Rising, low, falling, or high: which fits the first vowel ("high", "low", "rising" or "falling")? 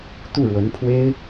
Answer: falling